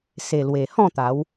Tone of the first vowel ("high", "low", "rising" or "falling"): low